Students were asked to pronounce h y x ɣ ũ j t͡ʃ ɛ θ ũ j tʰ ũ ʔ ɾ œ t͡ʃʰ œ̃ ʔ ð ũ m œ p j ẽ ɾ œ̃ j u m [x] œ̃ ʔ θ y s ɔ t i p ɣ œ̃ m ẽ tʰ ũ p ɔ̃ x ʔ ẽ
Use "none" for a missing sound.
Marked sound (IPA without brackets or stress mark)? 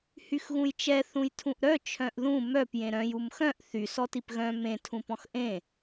x